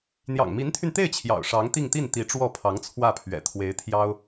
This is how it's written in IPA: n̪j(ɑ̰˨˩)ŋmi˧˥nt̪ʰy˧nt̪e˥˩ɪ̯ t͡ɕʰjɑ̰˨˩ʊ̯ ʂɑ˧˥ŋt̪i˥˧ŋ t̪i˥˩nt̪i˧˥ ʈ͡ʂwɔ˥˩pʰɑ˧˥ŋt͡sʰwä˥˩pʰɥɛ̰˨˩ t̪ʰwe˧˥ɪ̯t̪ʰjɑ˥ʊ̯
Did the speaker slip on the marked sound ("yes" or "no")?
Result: no